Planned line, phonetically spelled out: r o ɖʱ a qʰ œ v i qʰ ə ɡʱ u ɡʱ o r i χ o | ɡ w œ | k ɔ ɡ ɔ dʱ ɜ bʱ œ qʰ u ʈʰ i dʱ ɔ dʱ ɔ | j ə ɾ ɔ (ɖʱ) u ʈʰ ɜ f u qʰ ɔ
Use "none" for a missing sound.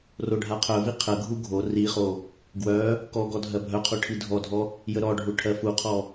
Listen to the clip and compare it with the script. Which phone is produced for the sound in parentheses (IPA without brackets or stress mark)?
ɖʱ